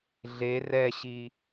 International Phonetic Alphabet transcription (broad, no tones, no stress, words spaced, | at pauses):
ɮe rɛɕi